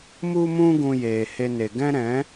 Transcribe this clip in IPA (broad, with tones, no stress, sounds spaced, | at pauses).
m u˦ m ũ˦ ɡ ũ˧ j eː˨ h e˧ n e˨ ɡ ɛ̃˦ ɾ ɛ̃˨˦